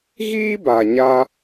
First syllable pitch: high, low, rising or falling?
high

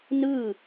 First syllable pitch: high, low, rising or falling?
falling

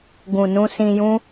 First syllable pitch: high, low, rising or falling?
low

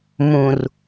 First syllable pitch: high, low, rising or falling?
low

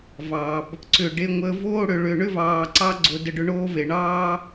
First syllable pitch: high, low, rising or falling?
low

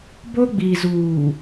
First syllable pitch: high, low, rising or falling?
high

